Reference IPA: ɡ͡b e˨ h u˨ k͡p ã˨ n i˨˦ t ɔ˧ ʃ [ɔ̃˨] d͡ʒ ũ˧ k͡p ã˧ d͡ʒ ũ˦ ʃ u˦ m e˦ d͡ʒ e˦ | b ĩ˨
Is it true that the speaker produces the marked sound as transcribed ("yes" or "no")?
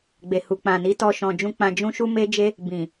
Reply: yes